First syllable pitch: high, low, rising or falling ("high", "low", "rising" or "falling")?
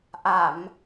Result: low